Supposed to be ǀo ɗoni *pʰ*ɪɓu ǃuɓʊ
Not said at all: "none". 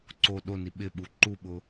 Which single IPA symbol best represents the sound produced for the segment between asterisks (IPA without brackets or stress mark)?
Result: ɓ